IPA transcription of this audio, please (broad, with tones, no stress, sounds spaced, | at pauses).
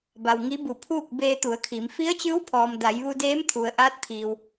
b a˩ w ŋ i˧˥ b u˧˩ pʰ uː˥˨ k̚ b eː˧ t̪ u˩˧ ə̯ kʰ i˩˧ m f i˧˥ ə̯ t͡ɕ ɯː˧˥ w pʰ ɔː˩ m d a˩˧ j ʋ u˧ d eː˧˥ m t̪ʰ u˩ ə̯ ʔ aː˧˥ t̚ t̪ʰ iː˩ w